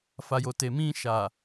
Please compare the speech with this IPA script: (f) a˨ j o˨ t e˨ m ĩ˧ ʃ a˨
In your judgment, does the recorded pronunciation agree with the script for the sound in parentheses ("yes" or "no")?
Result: yes